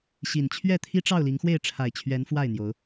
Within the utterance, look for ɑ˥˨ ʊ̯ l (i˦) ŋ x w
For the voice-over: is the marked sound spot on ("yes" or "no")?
no